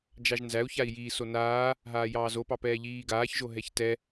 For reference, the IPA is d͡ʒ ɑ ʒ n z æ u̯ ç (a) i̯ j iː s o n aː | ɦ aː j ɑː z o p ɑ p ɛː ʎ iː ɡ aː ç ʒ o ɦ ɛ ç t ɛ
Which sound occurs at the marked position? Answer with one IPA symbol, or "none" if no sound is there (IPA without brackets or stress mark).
a